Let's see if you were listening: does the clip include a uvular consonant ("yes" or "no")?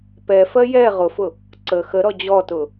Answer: yes